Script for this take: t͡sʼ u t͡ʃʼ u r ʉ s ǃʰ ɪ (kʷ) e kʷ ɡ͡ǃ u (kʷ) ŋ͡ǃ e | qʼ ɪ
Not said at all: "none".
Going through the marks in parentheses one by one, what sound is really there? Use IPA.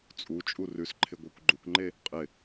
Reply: ɡʷ, kʷ

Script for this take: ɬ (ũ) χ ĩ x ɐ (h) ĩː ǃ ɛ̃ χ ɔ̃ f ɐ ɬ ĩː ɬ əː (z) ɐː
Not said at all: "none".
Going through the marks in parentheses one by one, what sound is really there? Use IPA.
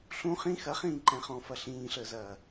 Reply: ũ, χ, z

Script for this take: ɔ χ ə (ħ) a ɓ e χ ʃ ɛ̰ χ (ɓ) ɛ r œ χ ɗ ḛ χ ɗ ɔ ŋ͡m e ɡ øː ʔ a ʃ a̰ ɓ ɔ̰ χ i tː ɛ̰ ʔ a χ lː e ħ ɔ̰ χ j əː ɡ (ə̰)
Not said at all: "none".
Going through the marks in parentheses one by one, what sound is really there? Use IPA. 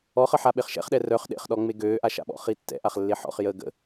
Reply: ħ, ɗ, ə̰

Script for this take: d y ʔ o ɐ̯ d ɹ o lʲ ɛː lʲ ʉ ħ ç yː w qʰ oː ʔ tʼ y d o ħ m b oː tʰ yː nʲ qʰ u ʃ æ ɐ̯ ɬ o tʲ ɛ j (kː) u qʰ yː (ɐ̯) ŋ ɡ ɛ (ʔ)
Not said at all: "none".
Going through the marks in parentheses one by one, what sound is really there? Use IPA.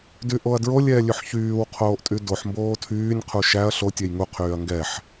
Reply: ŋ, ɐ̯, ħ

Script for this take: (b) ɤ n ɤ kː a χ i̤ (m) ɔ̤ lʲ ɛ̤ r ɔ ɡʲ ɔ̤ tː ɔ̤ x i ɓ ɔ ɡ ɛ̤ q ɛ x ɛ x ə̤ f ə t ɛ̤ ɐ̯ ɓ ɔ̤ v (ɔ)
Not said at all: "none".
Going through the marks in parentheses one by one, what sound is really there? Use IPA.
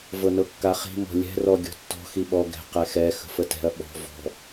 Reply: v, m, ɔ̤

